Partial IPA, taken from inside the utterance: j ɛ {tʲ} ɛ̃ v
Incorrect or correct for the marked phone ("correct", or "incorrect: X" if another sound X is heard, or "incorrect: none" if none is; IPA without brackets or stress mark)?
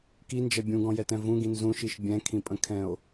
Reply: incorrect: t